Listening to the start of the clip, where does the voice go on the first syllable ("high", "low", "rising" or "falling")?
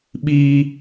high